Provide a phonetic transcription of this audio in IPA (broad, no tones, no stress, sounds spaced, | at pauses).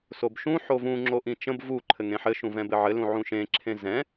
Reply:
s o b ʃ ũ ħ o v ũ ŋ͡ǁ o ʔ ĩ t͡ʃ ə̃ b v u ǃʰ ɘ ŋ ẽ ħ ɘ ʃ ũ v ɛ̃ b ɘ ʕ ɘ l ũ ʕ ũ ʃ ẽ ǁʰ ẽ z ɛ̃